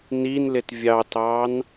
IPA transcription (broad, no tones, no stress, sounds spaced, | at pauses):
n i n l ɪ t vʲ ɑ t ɑ n